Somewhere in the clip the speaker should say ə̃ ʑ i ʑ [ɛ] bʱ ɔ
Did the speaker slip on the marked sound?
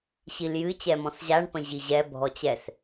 no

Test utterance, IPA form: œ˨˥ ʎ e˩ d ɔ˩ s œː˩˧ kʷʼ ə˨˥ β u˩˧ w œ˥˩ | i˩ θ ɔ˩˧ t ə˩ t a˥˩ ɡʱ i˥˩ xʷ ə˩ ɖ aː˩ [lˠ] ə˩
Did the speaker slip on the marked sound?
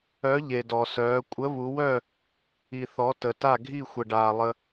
no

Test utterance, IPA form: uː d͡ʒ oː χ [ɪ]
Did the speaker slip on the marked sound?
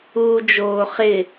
no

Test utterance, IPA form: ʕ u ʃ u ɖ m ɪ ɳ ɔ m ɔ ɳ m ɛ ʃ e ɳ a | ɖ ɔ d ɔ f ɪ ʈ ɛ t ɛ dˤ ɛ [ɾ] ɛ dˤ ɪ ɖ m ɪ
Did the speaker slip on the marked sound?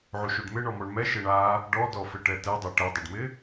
yes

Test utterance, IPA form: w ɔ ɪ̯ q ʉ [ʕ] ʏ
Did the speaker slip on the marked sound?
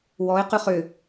yes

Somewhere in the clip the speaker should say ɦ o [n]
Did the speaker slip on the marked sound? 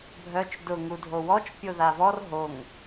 yes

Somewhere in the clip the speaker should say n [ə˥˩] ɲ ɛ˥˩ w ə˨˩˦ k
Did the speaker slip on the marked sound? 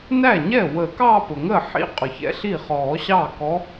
yes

